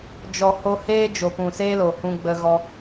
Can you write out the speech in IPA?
d͡ʒ ɔ˨ h o˧ h eː˦ d͡ʒ o˨ p ũ˨ s eː˦ l o˨ h ũ˧ ɡ͡b ə˧ ɣ ɔ˧

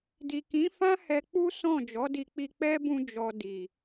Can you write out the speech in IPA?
d i˨ k ĩ˨˦ f ã˦ h ɛ˧ k͡p u˦ s ɔ̃˦˨ d͡ʒ ɔ˨˦ d i˧ k͡p i˧ k͡p ɛ˦ b ũ˧ d͡ʒ ɔ˨ d i˨

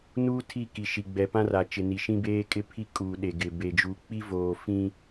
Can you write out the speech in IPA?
n uː˦ tʰ i˦˨ k i˨ ʃ i˨ ɡ͡b ɛ˨ p ã˦ r a˨ t͡ʃ ɪ˨ n i˨ ʃ ĩ˦ b eː˦ kʼ ɪ˦ pʰ i˦ kʼ uː˨ ɗ e˨ ɡ ɪ˨ b e˨ d͡ʒ u˨ k͡p i˦ v oː˨ f ĩ˦

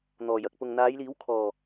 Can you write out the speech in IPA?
n̪ ɔː˨˩ j ɐ˨ k̚ p ʊ˨ ŋ n̪ aː˨˧ j l iː˨˥ w kʰ ɔː˨˩

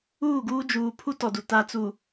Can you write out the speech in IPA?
uː˦˨ ɡ uː˦ d͡ʒ uː˨ pʰ u˦ t ɔ˨ d u˨ t a˨ t͡s u˨

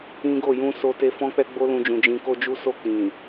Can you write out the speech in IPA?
ĩ˦ ɡ o˦˨ j ũ˧ s o˦ t e˦ f ɔ̃˦ k͡p ɛ˦ ɡ͡b o˦ l ũ˧ d͡ʒ ũ˨ d͡ʒ ĩ˧ k o˦ d͡ʒ u˦ s o˦˨ k͡p ĩ˨

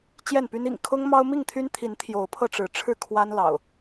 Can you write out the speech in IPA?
t͡ɕ j ɛ˥˨ n p y˦ n ḭ˨˩ ŋ kʰ ʊ˦ ŋ m ɑ˦ ʊ̯ m i˥˨ ŋ t̪ʰ y˦ n t̪ʰ i˨˦ n t̪ʰ j o˨˦ ʊ̯ pʰ ɤ˧ ʈ͡ʂ ɻ̩˨˦ ʈ͡ʂʰ ɻ̩˥˨ kʰ w a˦ n l ɑ̰˨˩ ʊ̯

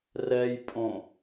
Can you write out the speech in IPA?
r ɛ j pʼ õ

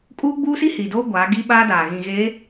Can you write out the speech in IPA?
kʼ uː˦ ɡ͡b uː˦ s i˦ h i˨ d oː˦ ɡʷ aː˨˦ ɡ i˦ ɓ aː˦ d aː˨ ɣ ĩ˨ ɣ eː˨˦

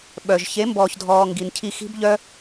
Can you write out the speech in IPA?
ɓ œ˨ ʒ ç e˨˦ m b ɔː˨ ç dʱ ɔː˨ ŋ ɡ i˨ n cʰ i˧ x i̤˦ b ʎ œ˦

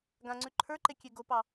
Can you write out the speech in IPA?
ɡ ã ŋ͡ǀ ʉ ǃʰ ə˞ ǃ e kʲ e ɡ o p ɑ

